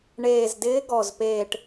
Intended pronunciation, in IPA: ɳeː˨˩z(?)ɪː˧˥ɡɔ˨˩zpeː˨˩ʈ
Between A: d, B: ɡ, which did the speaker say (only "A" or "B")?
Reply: A